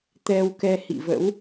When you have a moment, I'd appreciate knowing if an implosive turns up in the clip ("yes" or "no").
no